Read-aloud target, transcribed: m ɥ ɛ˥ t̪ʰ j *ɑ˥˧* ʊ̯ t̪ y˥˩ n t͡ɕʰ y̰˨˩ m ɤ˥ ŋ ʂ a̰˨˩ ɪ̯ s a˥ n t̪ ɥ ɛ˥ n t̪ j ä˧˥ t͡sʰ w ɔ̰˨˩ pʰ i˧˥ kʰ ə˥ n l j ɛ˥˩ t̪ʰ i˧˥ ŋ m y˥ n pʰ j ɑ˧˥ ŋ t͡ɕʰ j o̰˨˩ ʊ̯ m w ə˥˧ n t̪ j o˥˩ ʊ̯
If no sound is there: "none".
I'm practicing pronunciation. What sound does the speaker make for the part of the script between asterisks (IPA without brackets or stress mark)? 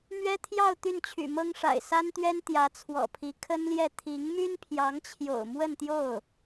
ɑ˥˧